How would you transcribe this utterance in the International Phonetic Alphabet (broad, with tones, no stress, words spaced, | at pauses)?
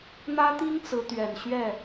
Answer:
n̪ä˥t̪i˥ŋ t͡sɹ̩˧˥t̪ɥɛ˨˩n ɕɥɛ˥˩